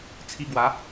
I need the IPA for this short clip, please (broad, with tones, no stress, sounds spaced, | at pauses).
t͡sʰ i˧ ɡ w a˨˦